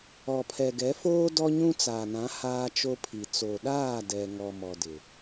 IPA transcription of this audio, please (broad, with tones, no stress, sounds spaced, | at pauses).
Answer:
ɔ˨ pʰ ɛ˨ ɡ ɛ˨˦ f oː˦ d ɔ˦ ɲ ũ˦ t͡s a˨ n ã˨˦ h aː˦ t͡ʃ o˦ pʰ i˨ t͡s o˨ ɗ aː˦˨ d ɛ˨ ŋ ɔ˨ m ɔ˨ d ɪ˨